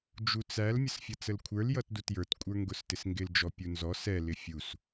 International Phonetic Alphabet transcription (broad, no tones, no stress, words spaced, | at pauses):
d͡ʒut͡sæl mʲəsfʲʌt͡səlkʷʰə˞l jʌtdutjə˞t kʷʼə˞ŋɡʊstɪsŋɡɪl d͡ʒɔpʲunzɔ sɛ lɪfʲus